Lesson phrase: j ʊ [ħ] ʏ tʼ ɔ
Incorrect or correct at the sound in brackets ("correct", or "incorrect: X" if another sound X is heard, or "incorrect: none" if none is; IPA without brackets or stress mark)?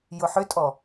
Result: correct